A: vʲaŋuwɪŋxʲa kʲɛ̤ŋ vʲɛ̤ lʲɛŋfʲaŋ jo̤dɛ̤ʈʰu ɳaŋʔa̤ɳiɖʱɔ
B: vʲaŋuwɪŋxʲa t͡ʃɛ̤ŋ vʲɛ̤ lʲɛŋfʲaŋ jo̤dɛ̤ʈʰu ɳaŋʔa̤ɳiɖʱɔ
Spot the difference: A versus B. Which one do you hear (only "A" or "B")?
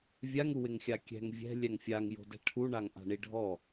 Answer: A